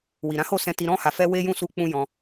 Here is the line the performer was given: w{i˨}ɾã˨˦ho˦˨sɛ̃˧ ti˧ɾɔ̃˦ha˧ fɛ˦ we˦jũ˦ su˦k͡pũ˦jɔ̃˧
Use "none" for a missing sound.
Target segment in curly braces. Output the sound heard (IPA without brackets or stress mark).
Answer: i˨